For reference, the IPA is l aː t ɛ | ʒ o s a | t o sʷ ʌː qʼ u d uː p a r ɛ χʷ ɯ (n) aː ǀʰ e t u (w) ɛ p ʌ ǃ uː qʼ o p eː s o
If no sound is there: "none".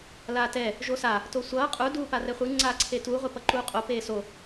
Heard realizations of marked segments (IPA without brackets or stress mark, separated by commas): ŋ͡ǀ, ʁʷ